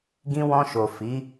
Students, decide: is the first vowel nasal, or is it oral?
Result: nasal